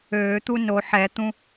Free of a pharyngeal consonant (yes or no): no